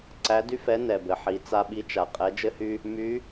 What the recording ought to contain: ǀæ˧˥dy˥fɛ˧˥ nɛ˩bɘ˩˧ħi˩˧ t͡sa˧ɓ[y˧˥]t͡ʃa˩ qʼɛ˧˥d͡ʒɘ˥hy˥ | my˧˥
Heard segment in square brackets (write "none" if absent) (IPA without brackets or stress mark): i˧˥